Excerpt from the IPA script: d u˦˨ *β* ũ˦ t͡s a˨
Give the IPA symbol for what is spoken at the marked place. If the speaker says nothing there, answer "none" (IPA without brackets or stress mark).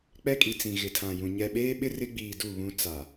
β